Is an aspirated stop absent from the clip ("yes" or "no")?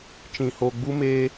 yes